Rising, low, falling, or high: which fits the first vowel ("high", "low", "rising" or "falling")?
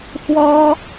high